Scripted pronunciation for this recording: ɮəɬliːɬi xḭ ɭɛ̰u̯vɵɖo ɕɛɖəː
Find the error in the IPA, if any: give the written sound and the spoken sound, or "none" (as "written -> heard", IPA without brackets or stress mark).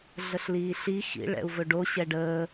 none